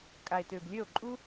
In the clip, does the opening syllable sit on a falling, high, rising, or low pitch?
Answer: low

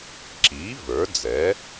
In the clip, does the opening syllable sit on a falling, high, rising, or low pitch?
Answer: rising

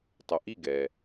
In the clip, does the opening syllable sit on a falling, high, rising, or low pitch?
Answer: low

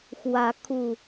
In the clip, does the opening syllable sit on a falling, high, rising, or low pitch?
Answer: rising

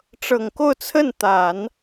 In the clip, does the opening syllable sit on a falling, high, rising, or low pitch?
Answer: low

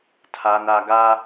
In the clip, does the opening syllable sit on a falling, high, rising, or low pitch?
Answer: low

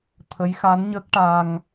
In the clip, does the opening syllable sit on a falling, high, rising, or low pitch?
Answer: rising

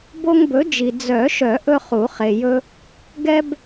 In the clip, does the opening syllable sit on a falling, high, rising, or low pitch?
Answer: high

